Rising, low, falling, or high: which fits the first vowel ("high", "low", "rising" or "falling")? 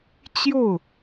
falling